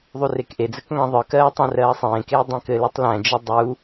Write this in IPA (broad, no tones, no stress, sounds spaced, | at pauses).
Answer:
ðˤ u r e k ʔ e d͡z ɘ k ŋ æ̃ ðˤ ə˞ k ɜː tˤ æ̃ r ɜː sˤ ẽː k eː dˤ ẽ k ɘ l ɜ tˤ l æ̃ d͡ʒ e dˤ u